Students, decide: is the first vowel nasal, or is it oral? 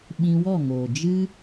nasal